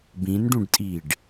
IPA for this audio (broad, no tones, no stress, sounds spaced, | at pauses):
b ĩ n ɖ ũ ɖ tʼ iː ɖ